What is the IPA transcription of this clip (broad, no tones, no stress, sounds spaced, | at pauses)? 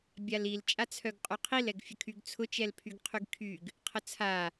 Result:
bʲ a l i l t͡ʃʼ a t͡sʰ œ ɡ qʼ ʉ qʰ i l ɛ ɡ fʲ ə kʰ y ɡ t͡sʰ ʊ t͡ʃ ɛ l pʰ y ɡ qʰ y ɡ kʰ y ɡ | qʰ ə t͡sʰ a